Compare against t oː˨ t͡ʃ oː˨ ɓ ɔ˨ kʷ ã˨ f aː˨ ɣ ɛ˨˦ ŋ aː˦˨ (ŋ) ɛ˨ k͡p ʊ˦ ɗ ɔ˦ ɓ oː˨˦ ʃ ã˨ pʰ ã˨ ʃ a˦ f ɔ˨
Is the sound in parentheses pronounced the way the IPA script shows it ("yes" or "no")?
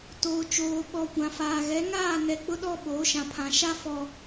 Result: no